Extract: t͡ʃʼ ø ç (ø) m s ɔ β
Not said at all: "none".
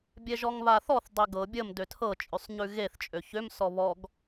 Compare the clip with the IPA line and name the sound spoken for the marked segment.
ø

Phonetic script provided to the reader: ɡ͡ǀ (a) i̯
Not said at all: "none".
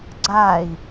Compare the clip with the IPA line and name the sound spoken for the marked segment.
a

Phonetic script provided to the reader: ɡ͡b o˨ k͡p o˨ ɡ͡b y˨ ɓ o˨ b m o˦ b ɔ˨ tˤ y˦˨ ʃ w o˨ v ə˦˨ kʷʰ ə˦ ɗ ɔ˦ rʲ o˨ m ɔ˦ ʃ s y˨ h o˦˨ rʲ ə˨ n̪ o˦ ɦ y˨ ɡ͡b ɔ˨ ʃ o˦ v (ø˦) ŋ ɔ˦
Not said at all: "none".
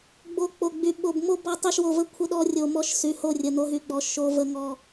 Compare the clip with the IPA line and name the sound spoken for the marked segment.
ə˦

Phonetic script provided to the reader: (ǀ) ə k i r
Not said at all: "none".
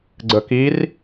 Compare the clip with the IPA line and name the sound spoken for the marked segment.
ɡ͡ǀ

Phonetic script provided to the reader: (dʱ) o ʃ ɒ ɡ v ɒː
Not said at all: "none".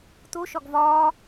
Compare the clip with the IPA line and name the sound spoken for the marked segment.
t̪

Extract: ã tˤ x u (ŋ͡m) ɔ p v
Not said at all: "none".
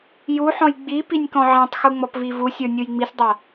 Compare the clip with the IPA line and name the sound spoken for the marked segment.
ŋ͡m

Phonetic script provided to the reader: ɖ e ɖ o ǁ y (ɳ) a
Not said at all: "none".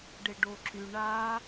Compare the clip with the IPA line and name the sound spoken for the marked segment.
ɳ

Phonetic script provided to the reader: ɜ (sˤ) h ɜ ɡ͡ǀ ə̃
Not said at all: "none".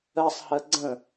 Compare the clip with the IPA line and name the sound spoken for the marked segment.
sˤ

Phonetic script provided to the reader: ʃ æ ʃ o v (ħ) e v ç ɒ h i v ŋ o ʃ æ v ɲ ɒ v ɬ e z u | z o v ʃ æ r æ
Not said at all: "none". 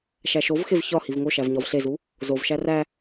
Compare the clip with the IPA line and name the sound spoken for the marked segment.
x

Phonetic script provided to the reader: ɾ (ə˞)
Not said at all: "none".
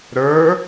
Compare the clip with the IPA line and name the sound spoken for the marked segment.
ə˞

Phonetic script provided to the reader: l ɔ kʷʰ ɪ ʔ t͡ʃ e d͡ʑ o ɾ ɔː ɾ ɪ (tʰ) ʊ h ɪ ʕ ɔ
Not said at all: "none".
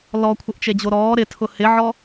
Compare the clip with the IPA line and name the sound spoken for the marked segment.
tʰ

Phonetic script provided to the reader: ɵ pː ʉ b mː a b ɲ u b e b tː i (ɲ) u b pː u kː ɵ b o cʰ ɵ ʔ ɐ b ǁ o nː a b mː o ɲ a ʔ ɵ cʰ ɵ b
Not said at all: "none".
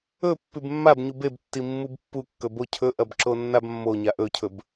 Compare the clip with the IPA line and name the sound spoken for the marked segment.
mː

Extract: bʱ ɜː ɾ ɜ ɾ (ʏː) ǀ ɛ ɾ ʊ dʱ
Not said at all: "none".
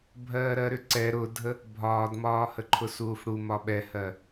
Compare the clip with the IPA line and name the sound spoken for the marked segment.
ʏ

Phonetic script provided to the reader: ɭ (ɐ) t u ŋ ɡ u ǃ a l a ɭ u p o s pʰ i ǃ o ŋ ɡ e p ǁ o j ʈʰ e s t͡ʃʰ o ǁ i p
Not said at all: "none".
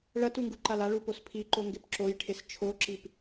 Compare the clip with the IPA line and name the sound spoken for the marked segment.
ɐ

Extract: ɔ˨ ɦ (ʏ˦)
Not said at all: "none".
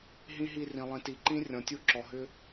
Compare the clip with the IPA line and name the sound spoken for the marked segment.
ʏ˦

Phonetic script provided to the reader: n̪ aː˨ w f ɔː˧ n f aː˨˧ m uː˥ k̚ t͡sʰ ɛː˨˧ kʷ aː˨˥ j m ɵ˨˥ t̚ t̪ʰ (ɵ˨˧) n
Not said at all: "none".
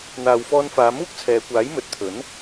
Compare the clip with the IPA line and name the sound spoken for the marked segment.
ɵ˨˥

